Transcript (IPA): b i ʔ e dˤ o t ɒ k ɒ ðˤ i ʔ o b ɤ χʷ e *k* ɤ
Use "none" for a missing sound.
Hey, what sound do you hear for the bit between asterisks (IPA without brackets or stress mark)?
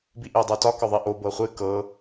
k